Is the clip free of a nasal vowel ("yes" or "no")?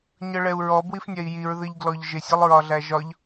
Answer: yes